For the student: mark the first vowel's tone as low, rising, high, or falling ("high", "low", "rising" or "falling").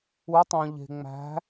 rising